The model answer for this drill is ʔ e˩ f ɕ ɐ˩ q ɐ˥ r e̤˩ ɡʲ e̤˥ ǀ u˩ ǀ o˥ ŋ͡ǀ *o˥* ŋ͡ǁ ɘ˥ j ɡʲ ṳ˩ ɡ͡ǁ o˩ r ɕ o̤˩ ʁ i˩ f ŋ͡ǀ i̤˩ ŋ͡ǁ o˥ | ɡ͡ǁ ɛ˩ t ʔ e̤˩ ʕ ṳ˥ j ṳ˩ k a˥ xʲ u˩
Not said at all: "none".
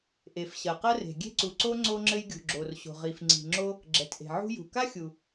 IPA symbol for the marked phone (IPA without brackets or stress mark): o˥